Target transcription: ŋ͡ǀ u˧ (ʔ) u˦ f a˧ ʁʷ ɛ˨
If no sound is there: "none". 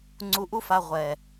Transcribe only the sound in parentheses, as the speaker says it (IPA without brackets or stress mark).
ʔ